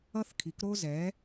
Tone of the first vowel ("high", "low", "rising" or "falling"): high